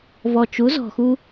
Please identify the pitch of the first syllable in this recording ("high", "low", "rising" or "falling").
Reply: low